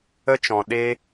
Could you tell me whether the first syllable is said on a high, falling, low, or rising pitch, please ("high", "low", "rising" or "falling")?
high